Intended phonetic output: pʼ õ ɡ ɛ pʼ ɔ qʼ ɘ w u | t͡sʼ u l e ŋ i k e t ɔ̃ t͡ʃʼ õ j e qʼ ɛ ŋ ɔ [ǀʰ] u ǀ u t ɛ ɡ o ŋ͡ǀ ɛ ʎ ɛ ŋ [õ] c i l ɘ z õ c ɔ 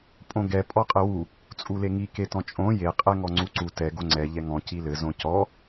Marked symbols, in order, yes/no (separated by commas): no, no